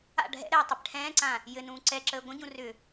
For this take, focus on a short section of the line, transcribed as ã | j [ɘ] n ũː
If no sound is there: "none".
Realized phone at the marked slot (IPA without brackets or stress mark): ɘ